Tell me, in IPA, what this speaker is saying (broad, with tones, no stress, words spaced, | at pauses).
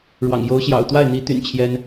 ɻwɑ̰˨˩ŋjo˧˥ʊ̯ɕjɑ̰˨˩ʊ̯ t̪wa˥˩ɪ̯n̪i˧˥t̪y̰˨˩n t͡ɕʰjɛ˥n